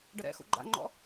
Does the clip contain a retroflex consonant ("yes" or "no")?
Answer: yes